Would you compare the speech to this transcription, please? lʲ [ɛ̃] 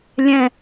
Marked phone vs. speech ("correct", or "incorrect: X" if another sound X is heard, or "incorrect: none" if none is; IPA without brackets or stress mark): correct